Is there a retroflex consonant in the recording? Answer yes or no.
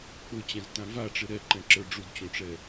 yes